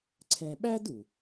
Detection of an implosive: present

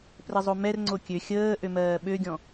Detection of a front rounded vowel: present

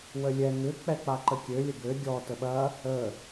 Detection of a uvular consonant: absent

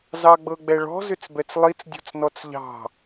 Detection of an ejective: absent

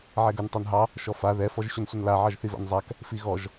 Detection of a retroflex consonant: absent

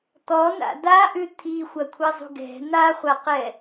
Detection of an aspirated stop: present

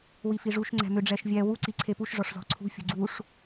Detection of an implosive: absent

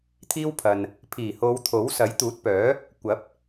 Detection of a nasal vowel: absent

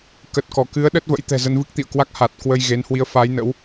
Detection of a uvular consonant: absent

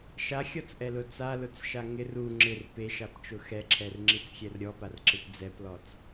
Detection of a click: present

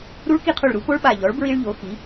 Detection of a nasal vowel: absent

